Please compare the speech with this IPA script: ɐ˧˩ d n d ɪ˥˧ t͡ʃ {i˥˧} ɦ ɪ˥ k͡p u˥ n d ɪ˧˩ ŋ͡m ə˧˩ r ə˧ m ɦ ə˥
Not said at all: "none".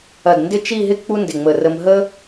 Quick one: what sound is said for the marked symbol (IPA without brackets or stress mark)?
i˥˧